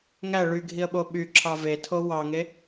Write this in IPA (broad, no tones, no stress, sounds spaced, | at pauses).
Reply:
ŋ æ ɭ y ɡʱ i ə̯ ɓ o ɓ y ǁʰ ɑ v e tʰ o w ɑ ŋ e